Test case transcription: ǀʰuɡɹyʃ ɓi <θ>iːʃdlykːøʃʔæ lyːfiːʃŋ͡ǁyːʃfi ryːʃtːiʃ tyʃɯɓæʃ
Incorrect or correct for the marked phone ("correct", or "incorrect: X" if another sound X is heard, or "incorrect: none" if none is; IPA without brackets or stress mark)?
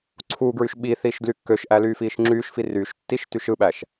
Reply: correct